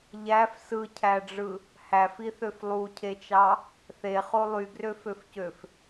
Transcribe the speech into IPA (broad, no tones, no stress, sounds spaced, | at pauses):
ʎ æ f s ɯ cʰ æ ɖ͡ʐ ɯ | h æ f i θ ø f lˠ u cʰ e t͡ʃ ɑ | θ e χ o lˠ y ɡ r ø f ø f c ø f